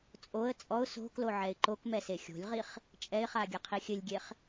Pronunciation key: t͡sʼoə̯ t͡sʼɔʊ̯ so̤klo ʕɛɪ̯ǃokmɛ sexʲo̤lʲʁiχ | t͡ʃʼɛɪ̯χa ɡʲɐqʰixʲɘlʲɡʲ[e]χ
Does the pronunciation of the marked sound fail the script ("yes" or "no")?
no